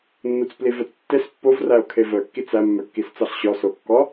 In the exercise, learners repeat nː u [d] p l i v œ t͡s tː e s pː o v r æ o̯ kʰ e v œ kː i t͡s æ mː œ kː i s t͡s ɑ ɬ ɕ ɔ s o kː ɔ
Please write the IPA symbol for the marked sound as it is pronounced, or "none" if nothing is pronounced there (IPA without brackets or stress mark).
t͡s